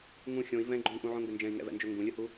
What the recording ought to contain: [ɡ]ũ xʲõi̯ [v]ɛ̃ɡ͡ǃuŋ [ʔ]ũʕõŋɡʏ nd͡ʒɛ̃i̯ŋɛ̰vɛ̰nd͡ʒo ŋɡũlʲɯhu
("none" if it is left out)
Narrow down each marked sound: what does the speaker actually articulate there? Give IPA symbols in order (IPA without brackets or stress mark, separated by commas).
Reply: ŋ, v, ʔ